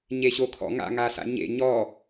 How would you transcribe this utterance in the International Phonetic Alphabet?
ɲeɕokʰɔ̰ ŋa̰ŋasa̰ ɲḛ ɲɔ

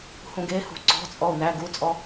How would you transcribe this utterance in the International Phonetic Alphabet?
hũɡehṳ ǀɔ̤t͡sʼɔu̯ næ ɡut͡sʼɔ

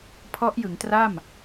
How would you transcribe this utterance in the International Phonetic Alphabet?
pʰɔ˦˥ʔjɯ˩˦ŋtra˥˩m

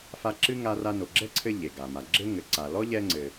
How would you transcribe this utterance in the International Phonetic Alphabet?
fa˦ǁɨ˥ŋa˦ra˦ no˨ɡ͡ǁɛ˥ǀʰɘ˦ ʎe˩ɡa˩ ma˩ɡ͡ǁɘ˥ŋɘ˨ǀa˨ lɔ˥ʎɛ˦ŋ͡ǀɘ˨

